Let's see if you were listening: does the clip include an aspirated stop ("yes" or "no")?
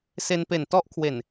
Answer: yes